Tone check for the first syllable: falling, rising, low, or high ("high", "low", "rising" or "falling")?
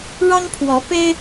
high